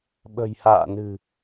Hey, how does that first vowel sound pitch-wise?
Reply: low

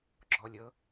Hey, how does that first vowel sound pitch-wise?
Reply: rising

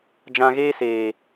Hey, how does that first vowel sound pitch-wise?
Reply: low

